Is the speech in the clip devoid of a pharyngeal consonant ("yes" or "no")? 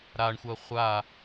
yes